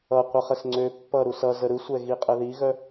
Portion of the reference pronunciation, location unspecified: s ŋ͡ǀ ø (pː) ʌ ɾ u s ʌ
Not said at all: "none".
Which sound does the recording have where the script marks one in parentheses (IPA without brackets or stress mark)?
pː